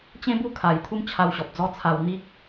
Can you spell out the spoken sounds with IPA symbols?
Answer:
t͡ɕ ẽ˦ b u˥˧ kʰ a˨˩ j t̪ʰ u˦ m t͡ɕʰ a˧ w ɕ ɔ˨ p̚ d͡z ɔ˦ t͡sʰ a˧ w n̪ i˦ k̚

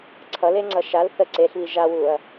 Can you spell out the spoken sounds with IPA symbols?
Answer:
ǀʰ ʌ l e ŋ͡ǀ ʌ ʃ a l θ ə ǀ e ɬ β i ʒ a w u ɐ̯

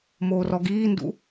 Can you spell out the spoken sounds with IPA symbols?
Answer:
m oː r ɔ ɡ iː n d ṵ

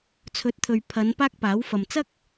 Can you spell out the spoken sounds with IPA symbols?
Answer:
t͡sʰ ɵ˨˥ t̚ t̪ʰ ɵ˨ ɥ pʰ ɐ˨˧ n p aː˥ k̚ p aː˨˥ w f ɐ˨ m t͡s ɐ˥ k̚

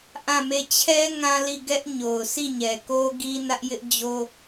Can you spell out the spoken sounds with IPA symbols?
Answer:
ʔ ã˦˨ m e˦˨ t͡ɕʰ ɛ˦ ŋ ã˦ l i˦˨ ɡ ɛ˦ ʔ ɲ o˨ ʊ̯ s i˦˨ ɲ ɛ˨ k o˦ ɡ i˦ n ä˦ ʔ j ɪ˦ ʔ d͡ʑ o˦

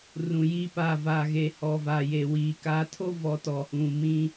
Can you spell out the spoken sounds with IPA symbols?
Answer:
r ũ˨ j i˦ p a˦˨ v a˨ ɣ e˨ h ɔ˨ v a˨ j e˨ w iː˨ k a˨˦ tʰ o˦ v ɔ˨ t ɔ˨ h ũ˨ m ĩ˦

